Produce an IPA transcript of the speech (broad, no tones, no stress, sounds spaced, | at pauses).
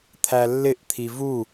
t̪ʰ æ lː ɪ ʔ t̪ʰ i v u